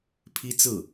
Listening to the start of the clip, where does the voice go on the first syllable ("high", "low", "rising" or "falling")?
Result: high